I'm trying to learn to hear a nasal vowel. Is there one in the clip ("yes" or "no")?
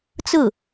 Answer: no